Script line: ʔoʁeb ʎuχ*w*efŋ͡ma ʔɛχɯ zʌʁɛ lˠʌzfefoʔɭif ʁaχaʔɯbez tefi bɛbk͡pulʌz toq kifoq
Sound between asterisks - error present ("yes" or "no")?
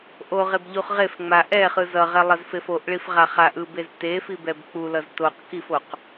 yes